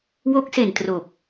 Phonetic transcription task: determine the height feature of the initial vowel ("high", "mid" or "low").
mid